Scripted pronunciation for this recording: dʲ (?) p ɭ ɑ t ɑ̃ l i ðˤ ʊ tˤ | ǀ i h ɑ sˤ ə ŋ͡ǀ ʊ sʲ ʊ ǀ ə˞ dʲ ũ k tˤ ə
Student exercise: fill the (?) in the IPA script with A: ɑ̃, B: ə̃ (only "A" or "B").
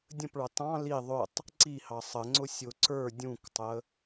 B